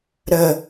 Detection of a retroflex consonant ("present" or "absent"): absent